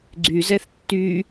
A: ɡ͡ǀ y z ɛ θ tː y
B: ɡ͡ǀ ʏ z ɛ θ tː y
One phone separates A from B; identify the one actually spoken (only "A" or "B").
A